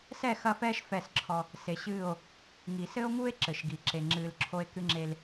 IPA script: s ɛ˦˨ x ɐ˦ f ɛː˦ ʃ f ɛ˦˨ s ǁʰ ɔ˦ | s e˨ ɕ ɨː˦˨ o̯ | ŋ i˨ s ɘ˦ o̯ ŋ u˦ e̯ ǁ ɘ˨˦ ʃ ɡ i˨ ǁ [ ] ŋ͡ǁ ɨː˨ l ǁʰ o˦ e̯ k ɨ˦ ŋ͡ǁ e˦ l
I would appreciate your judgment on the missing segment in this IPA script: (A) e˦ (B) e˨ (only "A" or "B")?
B